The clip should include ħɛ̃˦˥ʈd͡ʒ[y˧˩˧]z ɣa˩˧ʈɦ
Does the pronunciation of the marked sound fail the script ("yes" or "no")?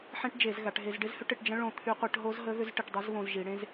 yes